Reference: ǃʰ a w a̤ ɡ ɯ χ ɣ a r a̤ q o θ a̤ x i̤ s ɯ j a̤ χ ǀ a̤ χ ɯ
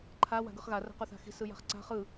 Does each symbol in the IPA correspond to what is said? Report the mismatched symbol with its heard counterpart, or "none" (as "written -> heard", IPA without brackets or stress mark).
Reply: none